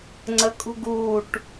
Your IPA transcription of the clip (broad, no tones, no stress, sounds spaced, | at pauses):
ŋ͡ǀ ə kʼ ṳ ɡ uː ʈ